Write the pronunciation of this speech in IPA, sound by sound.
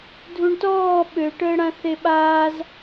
dʱ u ɳ t ɔː ɓ ø ʈ əː ɽ ã θ e ɓ aː z

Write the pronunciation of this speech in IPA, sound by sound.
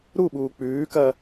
ɾ u ɓ uː k͡p ʉː k ɐ

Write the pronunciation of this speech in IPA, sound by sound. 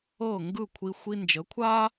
ɤː˥˩ ŋ ɡ ɯ˥˩ kʷʰ i˧ xʷ i˧ n d͡ʒ ə˩˥ kʷʰ aː˥

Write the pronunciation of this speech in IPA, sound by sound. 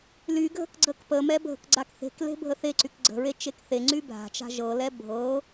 l y ɡʱ ə̤ k ɡ͡ǀ ə k p ə m ɛ bʱ ə̤ k ɡ͡ǀ a k θ e̤ k l e̤ bʱ ə θ e ǀ y k ɡ͡ǀ ə̤ ɹ e t͡ʃ e k θ e ŋ͡ǀ y bʱ a̤ t͡ʃ a̤ ʒ ɤ l ɛ bʱ ɤ

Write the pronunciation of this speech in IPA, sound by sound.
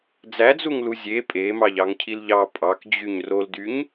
d͡z æ d͡z u ŋ l u zʲ e pʼ e m ɑ ʎ ɑ ŋ cʰ i l ʎ ɑ pʼ ɑ k d͡ʑ y ɲ r o l d y ɲ

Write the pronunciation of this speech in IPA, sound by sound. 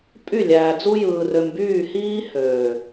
pʼ y˦˨ lʲ æː˨ d͡z u˦ j ɯː˨ r ø˨ m b yː˦˨ h iː˦ h øː˨

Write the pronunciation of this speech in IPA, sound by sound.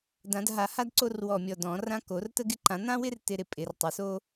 d ã˨˩˦ d ɦ a˨˩˦ h a˦ d ǀ o˦ r w ɔ˧˩ mʲ ɔ˧˩ d ɔ̃˨˩˦ r ã˦ k o˨˩˦ r t ə˦ ɡ ɪ˦ ǃ ã˨˩˦ n̪ ã˦ w ɪ˦ r t ɪ˦ ɾ ɪ˧˩ pʼ ɪ˨˩˦ r tˤ ə˨˩˦ s o˦

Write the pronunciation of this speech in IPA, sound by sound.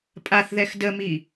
pʼ a θ ð ɛ x d ə m i

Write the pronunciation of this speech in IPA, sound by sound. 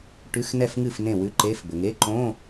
ʈ ʉ˧˥˧ x n ɛ˥˩ f ŋ ɨ˥˩ f n ẽ˥˩ w ʉ˧˥˧ ǃ e˧˥˧ f b ɘ˨ ŋ e˧˥˧ ǃ õ˧˥˧

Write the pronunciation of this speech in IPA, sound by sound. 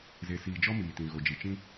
z e˨ s iː˨ d͡ʒ ɔ˦ m iː˨ t ĩ˨ ɣ o˨ d͡ʒ i˨ t͡ʃ ĩ˦

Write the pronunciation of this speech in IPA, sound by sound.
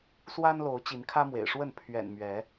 s w a˦ n l o˨˦ ʊ̯ t͡ɕ i˨˦ n kʰ ä˦ m w ḛ˨˩ ɪ̯ ʂ w ə˥˨ n pʰ ɥ ɛ̰˨˩ n m ɥ ɛ˨˦

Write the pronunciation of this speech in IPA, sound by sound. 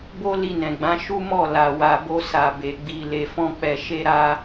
b o˦ l i˧ n ɛ̃˨ ɡ͡b ã˨˦ ʃ u˦ m ɔ˦˨ l a˨ w a˨ b o˧ s a˨ b e˨ ɡ͡b i˨ l e˨ f ɔ̃˧ k͡p ɛ˨ ʃ e˧ ɾ a˧

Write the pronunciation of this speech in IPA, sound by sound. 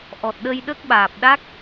ʔ ɔ˨˩ t̚ ɗ ə˧ j ɗ ə˦˥ k̚ ɓ aː˨˩ p̚ ɗ a˦˥ k̚

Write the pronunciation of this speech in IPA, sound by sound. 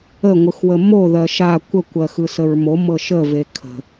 ə ŋʷ ɯ x w ə m o ð ɜ ʃ a kʷ ə kʷ ɜ x ɯ s ə ɹ m o m ɤ ʃ ə v e kʰ ə̤

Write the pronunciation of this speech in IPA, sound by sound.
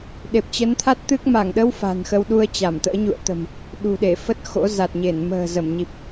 ɗ e˨˩ p̚ t͡ɕ ə˨˦ n t̪ʰ a˦˥ t̚ t̪ ɨ˦˥ k̚ m a˧˩ ŋ ɗ ə˧ w f a̤˨˩ n x ə˧ w ɗ u˧ ə̯ t͡ɕ a˧˩ m t̪ ə̰ː˧˥ ɲ ṵ˧˨ ə̯ t̪ ə̤˨˩ m | ɗ ṳ˨˩ ɗ e˧˩ f ə˦˥ t̚ x o̰˧˥ z a˨˩ t̚ ɲ e˧˩ n m ə̤ː˨˩ z ə˧˩ m ɲ i˨˩ p̚

